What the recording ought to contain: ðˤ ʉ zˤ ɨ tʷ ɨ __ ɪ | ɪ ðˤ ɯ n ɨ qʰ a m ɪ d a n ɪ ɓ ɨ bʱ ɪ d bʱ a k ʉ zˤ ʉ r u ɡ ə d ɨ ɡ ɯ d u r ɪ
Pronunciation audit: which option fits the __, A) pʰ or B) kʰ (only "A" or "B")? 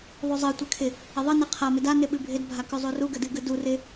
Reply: B